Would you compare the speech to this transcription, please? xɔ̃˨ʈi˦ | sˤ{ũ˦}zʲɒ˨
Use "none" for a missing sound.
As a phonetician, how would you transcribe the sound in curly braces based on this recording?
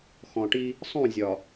ũ˦˨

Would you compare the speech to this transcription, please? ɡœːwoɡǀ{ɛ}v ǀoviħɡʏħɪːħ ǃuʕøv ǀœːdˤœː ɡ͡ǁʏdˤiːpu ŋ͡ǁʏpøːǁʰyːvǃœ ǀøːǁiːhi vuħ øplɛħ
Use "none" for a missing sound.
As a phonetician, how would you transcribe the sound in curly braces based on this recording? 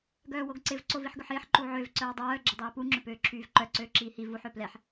ɪ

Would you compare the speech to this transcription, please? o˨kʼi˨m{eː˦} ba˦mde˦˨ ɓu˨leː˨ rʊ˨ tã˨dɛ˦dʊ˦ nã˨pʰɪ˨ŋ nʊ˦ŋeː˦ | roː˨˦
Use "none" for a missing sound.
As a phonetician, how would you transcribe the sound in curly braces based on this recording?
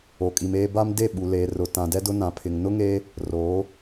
eː˦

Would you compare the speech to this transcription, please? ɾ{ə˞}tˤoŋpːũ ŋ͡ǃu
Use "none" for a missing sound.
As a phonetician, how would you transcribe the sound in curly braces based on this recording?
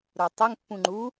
ə˞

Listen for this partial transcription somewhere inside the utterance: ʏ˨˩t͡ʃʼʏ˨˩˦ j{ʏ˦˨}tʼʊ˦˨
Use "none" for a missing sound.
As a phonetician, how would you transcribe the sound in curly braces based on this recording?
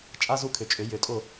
ʏ˨˩˦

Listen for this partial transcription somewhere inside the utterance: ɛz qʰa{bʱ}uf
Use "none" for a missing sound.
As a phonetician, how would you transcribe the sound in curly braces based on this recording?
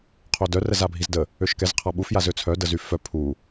ɓ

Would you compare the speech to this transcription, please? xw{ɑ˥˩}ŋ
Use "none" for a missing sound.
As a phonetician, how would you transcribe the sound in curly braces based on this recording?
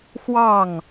ɑ˥˩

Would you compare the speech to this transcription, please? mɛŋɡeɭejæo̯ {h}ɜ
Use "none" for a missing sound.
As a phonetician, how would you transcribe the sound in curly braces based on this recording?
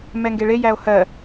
h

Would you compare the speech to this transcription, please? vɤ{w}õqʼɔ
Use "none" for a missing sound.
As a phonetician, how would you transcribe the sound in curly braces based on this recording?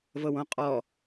w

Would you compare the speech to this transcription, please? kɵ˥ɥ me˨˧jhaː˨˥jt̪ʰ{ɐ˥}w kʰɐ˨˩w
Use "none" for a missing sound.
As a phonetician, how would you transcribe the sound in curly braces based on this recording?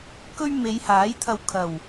ɐ˧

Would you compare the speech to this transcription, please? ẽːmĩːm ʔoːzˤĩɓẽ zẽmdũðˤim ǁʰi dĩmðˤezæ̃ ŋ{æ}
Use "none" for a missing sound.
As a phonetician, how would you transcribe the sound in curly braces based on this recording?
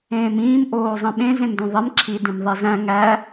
æ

